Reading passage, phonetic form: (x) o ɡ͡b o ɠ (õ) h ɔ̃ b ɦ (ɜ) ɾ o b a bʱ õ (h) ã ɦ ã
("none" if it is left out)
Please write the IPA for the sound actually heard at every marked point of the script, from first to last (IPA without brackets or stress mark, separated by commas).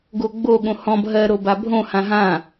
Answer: ɡ, õ, ɜ, h